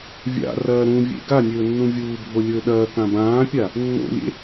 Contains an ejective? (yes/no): no